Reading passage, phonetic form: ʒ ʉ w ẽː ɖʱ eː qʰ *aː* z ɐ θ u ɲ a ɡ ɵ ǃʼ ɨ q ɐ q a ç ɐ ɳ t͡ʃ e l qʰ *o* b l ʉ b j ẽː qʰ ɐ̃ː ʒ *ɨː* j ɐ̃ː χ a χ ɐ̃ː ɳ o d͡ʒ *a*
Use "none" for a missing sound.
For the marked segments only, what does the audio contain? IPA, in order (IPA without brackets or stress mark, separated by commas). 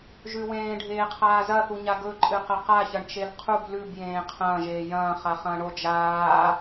aː, u, eː, aː